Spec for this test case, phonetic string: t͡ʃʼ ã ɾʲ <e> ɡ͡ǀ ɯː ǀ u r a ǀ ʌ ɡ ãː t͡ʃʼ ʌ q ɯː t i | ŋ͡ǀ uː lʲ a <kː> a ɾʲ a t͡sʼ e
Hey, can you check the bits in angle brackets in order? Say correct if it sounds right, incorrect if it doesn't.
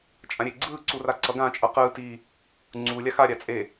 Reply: correct, incorrect: x

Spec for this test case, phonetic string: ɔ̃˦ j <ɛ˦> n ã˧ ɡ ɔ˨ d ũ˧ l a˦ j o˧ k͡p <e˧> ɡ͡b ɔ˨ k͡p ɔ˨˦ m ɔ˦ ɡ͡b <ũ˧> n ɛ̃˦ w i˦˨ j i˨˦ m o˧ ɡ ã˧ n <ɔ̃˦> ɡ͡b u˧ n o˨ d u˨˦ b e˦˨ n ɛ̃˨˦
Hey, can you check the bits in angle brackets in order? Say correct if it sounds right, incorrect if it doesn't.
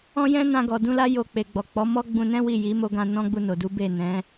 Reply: incorrect: ɛ̃˦, incorrect: e˨, correct, correct

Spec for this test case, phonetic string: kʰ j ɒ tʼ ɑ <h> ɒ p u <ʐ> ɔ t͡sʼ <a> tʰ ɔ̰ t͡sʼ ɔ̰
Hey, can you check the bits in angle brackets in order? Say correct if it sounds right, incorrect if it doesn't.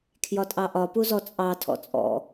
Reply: incorrect: ʔ, incorrect: z, incorrect: ɑ

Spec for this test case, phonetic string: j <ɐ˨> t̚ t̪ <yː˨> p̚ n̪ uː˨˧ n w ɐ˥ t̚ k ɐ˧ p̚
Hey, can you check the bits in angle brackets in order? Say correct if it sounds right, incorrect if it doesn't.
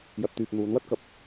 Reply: correct, correct

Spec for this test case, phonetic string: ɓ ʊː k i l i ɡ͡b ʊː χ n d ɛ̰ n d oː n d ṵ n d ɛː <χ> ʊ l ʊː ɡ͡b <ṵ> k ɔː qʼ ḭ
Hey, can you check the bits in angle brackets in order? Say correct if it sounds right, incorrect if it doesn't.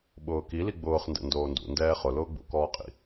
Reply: correct, correct

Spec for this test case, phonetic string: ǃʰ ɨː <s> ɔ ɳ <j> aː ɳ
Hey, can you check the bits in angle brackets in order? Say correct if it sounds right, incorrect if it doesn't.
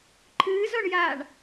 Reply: incorrect: z, correct

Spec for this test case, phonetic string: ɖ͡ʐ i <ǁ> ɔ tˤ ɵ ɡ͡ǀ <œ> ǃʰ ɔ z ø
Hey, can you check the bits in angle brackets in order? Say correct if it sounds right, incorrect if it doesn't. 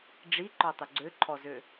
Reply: incorrect: ǃ, incorrect: ø

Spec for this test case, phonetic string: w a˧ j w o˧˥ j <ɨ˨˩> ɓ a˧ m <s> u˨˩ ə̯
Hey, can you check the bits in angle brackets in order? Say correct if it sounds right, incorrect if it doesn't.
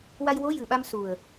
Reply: correct, correct

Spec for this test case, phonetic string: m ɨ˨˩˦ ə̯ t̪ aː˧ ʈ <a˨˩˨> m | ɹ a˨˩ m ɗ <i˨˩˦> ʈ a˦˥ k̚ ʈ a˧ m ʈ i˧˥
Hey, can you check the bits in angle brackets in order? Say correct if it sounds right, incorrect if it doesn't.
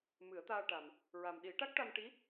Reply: incorrect: a˨˩, correct

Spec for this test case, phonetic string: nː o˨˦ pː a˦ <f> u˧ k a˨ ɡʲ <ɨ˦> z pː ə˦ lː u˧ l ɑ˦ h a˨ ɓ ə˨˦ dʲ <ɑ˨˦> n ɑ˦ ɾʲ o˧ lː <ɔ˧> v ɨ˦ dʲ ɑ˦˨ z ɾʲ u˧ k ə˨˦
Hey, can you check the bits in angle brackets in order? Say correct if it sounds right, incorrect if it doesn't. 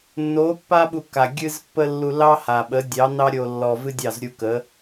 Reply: incorrect: ɓ, correct, correct, correct

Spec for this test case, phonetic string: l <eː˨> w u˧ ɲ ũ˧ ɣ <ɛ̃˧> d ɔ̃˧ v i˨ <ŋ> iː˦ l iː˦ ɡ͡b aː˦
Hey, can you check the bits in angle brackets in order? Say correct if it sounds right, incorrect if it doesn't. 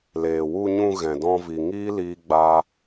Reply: correct, incorrect: ɛ̃˨, correct

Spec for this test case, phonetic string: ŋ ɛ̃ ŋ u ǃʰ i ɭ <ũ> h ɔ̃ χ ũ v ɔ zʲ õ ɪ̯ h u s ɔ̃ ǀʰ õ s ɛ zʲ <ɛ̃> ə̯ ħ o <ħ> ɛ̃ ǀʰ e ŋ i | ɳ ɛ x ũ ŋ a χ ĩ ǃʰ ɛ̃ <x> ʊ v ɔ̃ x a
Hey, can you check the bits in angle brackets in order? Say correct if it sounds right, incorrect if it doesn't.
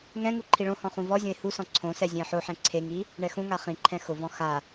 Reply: incorrect: õ, correct, correct, correct

